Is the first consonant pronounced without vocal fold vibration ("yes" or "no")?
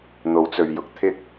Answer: no